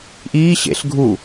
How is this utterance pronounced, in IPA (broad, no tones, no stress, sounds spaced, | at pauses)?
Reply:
ʔ iː ɕ ḛ ɬ ɡʱ u